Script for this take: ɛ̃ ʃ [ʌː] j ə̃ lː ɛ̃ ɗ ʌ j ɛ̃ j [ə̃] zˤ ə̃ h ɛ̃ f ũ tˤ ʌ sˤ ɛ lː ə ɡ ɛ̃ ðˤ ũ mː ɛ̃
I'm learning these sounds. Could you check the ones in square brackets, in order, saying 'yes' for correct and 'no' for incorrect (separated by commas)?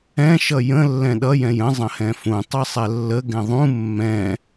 no, yes